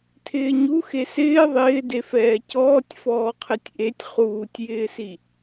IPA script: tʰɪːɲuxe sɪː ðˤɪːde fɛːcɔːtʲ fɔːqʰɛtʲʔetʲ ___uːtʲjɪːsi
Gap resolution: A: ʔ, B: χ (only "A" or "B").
B